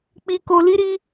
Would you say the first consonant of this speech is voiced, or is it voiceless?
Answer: voiceless